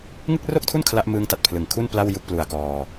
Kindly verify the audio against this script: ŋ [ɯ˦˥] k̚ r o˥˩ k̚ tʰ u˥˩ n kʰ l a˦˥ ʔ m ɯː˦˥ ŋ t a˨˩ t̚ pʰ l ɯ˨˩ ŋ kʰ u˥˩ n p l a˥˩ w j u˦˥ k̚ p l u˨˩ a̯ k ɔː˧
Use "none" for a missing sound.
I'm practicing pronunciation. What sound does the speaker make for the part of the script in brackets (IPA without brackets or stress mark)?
ɯ˥˩